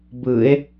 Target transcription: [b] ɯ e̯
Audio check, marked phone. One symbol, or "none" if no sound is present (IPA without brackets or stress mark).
b